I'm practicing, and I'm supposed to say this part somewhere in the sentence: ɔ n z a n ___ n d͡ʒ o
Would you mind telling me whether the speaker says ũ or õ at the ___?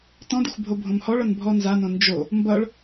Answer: õ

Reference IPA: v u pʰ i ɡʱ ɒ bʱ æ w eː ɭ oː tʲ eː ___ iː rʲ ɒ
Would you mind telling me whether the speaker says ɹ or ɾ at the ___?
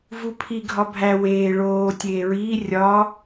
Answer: ɹ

